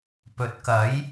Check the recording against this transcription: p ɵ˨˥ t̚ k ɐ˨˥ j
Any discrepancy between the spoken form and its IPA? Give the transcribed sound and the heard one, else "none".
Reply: none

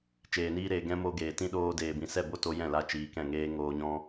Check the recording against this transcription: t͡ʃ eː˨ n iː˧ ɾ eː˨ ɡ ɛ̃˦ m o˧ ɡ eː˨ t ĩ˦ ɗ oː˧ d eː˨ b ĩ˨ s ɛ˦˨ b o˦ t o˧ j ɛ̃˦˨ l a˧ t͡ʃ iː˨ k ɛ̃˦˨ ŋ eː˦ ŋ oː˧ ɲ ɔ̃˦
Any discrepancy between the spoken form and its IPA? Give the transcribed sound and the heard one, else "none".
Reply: none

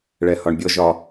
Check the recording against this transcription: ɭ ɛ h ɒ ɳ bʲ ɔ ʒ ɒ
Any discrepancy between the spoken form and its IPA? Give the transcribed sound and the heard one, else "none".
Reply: none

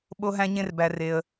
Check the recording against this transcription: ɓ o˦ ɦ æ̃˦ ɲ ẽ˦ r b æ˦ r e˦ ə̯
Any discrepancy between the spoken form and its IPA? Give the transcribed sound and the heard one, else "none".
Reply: none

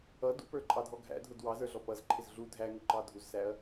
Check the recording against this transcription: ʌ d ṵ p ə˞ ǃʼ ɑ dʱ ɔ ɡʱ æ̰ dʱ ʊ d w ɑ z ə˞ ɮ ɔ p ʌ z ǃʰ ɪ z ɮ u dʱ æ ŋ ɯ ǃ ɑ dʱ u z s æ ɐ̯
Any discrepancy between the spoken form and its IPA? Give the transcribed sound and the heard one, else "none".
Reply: ɯ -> ʊ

